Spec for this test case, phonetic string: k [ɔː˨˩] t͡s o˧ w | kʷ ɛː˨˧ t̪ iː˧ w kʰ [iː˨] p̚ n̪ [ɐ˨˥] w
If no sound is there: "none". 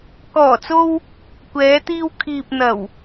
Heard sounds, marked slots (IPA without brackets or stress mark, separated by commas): ɔː˨˩, iː˨, ɐ˨˩